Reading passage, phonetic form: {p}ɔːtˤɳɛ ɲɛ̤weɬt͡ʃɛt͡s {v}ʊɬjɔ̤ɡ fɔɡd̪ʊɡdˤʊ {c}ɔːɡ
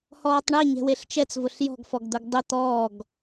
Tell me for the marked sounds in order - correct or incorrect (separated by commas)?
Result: incorrect, correct, incorrect